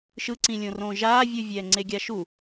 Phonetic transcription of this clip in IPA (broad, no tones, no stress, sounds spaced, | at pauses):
ʃ ɯ ǀ ĩ lʲ õ r õː ʒ aː vʲ u vʲ ɛː ŋ͡ǀ e ɡʲ a ʃ u